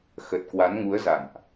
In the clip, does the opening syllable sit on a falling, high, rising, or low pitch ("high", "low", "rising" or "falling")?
low